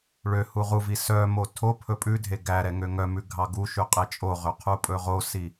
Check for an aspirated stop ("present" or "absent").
present